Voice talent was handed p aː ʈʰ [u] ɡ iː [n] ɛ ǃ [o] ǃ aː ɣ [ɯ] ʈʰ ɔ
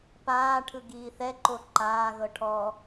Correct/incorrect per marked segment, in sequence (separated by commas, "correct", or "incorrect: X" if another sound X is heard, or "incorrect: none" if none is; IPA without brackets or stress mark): incorrect: ɯ, incorrect: θ, correct, incorrect: ɤ